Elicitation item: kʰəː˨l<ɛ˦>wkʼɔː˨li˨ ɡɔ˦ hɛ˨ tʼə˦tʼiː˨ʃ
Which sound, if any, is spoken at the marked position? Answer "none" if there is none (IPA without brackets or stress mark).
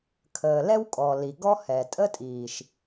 ɛ˦